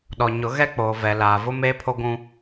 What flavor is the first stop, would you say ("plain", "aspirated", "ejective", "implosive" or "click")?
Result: implosive